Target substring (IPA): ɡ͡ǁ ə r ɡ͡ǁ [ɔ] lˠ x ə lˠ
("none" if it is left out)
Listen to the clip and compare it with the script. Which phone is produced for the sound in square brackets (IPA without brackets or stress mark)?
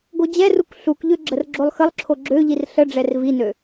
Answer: o